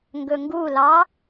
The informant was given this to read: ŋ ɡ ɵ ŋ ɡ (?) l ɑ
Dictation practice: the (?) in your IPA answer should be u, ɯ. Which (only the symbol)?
u